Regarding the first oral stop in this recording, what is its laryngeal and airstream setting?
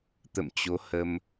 plain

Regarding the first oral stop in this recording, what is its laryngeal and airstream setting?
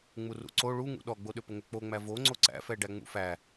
click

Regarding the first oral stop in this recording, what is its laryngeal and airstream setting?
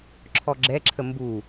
click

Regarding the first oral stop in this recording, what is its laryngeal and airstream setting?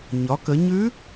plain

